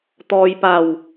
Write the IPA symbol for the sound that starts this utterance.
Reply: t̪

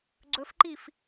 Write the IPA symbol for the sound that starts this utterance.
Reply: ɡ͡ǀ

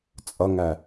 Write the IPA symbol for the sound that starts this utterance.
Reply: t͡sʼ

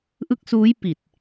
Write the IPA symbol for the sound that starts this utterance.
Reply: ʔ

